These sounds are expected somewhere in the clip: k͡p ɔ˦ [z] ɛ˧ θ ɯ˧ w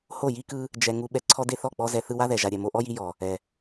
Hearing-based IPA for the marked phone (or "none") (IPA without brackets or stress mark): z